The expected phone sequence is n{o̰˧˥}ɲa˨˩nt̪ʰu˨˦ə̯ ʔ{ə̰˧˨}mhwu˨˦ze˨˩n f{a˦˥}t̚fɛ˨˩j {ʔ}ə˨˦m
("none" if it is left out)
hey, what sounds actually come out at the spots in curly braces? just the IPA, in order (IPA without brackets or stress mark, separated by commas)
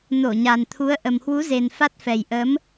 o˧˩, ə˨˩, a˦˥, ʔ